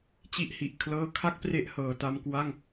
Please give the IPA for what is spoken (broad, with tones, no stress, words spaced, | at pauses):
t͡ɕi˦˥ʔhi˨˩ʔ kʰlɤː˦˥kʰa˥˩k̚pre˦˥ʔhɤː˨˩ ta˧mkwa˥˩ŋ